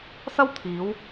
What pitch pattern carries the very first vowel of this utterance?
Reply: high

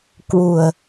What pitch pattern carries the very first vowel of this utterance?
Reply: low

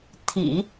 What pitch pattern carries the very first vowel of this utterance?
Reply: low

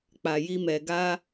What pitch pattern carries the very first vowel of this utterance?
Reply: low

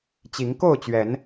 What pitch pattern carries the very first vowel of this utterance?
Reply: rising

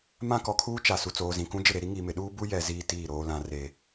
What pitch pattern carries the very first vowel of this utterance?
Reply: high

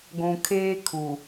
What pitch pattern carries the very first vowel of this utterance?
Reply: low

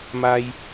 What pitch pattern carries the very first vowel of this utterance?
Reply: high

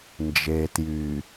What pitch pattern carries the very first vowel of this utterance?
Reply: low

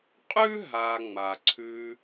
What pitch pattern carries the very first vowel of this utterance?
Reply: high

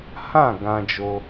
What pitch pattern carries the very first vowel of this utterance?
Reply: falling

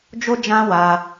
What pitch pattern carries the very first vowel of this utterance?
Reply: high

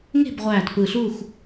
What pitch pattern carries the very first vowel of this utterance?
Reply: falling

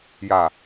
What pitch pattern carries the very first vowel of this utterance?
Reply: low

